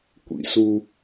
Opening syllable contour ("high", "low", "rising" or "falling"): low